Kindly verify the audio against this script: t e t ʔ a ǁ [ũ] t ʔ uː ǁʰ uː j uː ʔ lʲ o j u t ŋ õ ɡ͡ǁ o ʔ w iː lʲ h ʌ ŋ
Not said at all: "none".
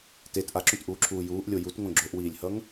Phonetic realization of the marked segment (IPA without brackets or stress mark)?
ũ